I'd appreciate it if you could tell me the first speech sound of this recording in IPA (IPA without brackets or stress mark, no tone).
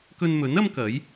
k